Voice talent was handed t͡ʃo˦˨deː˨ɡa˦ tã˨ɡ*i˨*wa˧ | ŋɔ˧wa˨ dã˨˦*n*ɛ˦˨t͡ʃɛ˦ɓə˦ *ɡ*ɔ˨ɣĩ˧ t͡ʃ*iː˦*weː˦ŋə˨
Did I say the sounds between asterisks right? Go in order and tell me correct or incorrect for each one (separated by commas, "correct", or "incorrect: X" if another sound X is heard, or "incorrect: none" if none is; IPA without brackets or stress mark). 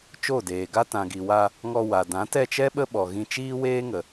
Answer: correct, incorrect: t, incorrect: ɓ, correct